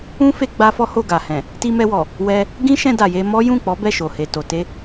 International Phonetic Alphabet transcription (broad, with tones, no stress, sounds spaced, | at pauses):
ũ˦ f e˧ ɡ͡b a˦ f ɔ˦ h o˦˨ ɡ a˨ h ɛ̃˨ | t i˧ m ɛ˧ w ɔ˨ | w ɛ˧ | ɡ ĩ˦ ʃ ɛ̃˧ d a˨ j e˧ m ɔ˦ j ũ˦˨ k͡p ɔ˨˦ b ɛ˦˨ ʃ o˨ h e˨ t o˨ t e˧